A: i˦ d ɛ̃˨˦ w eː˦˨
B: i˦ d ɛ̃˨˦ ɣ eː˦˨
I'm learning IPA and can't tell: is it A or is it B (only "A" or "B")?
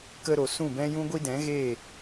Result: B